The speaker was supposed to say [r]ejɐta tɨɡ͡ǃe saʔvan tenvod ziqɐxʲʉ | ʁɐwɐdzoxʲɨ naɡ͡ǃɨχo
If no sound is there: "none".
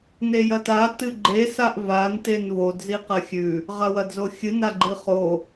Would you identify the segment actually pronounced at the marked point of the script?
n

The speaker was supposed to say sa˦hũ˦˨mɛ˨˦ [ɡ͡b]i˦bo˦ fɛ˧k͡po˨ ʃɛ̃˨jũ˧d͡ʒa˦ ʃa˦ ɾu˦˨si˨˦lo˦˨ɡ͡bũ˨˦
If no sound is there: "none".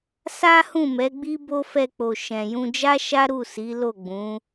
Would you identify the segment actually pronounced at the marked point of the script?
ɡ͡b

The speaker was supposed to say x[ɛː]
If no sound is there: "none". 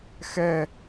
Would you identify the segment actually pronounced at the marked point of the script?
ɛ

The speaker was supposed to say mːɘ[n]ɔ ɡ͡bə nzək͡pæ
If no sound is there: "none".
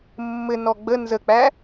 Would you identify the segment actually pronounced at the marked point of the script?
n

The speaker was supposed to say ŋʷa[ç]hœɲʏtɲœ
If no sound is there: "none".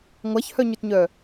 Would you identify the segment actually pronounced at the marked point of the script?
ç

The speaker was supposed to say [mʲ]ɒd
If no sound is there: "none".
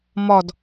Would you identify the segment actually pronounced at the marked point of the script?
m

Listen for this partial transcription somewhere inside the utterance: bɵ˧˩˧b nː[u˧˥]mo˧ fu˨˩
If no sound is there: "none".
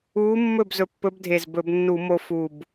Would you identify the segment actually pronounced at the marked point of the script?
u˧˩˧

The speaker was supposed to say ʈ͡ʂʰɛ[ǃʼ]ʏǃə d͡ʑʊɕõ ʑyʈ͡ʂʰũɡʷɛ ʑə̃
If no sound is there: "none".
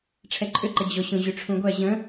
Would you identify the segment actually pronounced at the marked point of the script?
ǃʼ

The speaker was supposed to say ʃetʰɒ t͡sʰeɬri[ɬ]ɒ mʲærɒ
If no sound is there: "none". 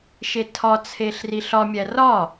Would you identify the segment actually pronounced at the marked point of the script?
ɬ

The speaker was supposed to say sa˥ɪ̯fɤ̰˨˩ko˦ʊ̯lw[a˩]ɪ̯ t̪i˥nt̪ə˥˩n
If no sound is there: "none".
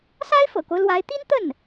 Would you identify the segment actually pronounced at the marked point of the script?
a˧˥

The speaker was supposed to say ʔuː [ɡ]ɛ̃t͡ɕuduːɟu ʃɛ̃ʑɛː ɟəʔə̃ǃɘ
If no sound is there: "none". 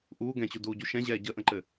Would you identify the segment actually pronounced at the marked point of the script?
ɡ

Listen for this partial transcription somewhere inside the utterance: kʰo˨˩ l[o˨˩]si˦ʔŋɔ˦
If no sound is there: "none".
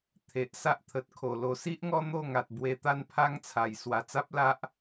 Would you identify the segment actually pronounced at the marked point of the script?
o˨˩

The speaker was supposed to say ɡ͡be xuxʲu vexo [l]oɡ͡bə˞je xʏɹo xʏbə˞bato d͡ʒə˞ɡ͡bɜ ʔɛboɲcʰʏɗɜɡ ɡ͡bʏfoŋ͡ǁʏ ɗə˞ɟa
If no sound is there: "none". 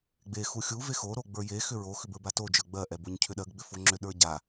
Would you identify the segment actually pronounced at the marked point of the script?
ɾ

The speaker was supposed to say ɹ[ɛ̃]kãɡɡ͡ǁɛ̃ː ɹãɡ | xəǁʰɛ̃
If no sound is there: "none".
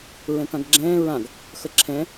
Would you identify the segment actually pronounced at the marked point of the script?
ɛ̃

